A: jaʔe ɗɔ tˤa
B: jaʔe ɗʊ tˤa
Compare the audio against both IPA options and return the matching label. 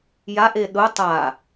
B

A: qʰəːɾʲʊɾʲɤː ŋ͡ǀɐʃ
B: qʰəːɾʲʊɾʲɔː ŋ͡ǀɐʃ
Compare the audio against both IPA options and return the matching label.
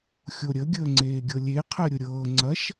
A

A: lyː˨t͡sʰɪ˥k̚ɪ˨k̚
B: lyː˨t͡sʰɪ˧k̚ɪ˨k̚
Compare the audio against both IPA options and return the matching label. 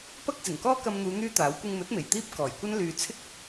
A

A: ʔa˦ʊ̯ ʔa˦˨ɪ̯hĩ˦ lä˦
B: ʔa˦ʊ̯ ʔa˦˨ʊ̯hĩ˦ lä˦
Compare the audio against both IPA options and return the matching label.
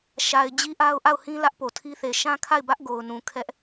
B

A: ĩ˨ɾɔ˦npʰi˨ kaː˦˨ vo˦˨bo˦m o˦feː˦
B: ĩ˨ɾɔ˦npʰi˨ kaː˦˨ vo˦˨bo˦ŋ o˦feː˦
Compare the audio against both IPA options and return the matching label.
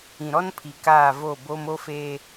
A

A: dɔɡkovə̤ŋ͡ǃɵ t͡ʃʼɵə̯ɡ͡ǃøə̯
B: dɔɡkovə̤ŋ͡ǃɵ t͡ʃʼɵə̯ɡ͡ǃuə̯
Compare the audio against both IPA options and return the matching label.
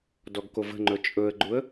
B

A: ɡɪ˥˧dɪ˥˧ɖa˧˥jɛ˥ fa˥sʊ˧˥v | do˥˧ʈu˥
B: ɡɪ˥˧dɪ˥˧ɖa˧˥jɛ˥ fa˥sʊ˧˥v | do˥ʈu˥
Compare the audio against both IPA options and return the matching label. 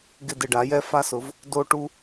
B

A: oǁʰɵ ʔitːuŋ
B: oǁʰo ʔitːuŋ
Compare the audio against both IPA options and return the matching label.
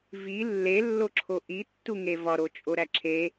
B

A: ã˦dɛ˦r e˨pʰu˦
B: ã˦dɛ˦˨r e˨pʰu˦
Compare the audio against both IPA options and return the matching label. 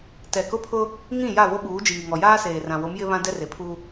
A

